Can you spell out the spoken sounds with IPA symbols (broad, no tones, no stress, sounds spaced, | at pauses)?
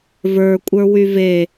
v ə˞ kʷʼ ə˞ w y v e